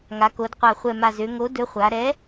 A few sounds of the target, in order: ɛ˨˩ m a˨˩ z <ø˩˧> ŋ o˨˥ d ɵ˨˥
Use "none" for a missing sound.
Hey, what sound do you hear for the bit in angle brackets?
ø˩˧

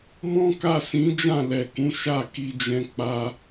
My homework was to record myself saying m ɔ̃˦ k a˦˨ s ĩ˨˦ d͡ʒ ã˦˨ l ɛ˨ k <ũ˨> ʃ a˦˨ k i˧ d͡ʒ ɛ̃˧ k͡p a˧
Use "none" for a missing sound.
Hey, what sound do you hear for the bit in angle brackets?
ũ˨˦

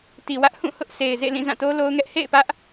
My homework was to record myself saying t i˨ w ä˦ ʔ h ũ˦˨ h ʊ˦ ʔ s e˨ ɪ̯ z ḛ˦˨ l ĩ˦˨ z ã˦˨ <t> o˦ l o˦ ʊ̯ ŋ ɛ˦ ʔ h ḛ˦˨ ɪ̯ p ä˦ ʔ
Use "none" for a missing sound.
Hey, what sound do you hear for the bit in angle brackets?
t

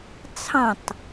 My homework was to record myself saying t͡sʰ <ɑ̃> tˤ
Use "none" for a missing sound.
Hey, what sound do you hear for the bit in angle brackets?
ɑ̃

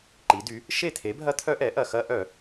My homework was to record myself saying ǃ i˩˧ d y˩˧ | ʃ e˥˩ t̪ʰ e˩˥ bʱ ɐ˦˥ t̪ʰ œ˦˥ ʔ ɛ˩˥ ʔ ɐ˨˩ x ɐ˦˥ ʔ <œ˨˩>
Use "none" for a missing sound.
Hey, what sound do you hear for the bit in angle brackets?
œ˧˩˧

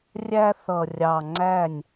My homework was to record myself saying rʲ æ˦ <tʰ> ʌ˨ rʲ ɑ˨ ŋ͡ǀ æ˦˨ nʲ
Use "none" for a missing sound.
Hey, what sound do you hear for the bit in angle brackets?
θ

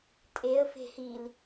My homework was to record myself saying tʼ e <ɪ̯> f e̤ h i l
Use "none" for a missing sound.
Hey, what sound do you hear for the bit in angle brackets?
ə̯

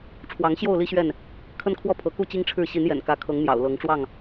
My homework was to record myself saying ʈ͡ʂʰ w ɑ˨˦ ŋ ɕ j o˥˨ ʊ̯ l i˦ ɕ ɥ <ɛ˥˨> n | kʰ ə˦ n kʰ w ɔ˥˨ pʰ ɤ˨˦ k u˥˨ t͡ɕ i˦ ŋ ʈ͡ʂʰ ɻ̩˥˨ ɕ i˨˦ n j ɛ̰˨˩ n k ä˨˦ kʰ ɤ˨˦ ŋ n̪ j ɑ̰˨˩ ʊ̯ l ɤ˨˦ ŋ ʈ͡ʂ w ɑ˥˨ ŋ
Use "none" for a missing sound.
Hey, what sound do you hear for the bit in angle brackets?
ɛ˥˨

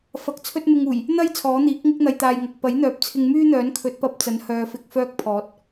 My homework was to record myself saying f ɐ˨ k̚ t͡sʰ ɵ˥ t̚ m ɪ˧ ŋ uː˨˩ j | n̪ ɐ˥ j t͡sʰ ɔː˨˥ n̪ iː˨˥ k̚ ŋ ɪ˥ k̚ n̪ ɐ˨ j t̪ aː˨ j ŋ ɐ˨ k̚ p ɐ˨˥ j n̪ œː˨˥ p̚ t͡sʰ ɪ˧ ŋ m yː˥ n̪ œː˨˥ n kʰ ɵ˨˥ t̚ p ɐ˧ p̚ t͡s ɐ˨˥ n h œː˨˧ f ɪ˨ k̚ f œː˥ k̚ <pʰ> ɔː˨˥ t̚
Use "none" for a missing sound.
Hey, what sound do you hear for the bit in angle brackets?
pʰ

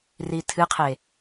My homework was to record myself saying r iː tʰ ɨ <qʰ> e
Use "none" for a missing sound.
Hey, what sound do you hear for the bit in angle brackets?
qʰ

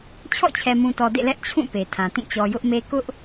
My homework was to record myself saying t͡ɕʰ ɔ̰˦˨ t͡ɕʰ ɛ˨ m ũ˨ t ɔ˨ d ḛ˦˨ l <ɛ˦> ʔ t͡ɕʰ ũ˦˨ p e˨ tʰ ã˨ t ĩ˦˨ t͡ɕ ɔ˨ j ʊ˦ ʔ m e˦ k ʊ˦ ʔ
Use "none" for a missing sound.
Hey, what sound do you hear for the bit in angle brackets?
ɛ˦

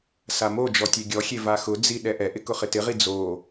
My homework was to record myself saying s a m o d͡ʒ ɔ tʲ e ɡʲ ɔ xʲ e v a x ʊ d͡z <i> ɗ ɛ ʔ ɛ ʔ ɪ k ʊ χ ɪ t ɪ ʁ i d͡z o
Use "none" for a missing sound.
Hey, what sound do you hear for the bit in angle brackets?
i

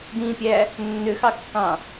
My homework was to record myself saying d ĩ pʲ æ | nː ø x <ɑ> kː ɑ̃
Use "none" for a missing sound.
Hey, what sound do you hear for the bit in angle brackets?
ɑ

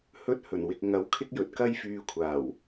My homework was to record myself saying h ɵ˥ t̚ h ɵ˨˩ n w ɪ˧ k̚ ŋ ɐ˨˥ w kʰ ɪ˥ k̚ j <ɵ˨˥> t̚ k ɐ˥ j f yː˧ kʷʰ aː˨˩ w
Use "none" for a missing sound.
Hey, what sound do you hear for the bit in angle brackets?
ɵ˨˥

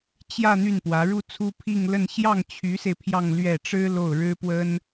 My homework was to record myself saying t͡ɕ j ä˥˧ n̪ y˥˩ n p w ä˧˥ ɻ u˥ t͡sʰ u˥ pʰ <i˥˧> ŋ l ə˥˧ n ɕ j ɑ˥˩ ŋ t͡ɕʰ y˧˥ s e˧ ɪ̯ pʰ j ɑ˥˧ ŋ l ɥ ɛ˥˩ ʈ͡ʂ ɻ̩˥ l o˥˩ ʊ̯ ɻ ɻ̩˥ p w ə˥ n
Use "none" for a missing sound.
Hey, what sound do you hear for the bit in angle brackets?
i˥˧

